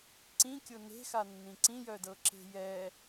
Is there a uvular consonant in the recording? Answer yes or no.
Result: no